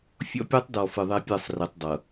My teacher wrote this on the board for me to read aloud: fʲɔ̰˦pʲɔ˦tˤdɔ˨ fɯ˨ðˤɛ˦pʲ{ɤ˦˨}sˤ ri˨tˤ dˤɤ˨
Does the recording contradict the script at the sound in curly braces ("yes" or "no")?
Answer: no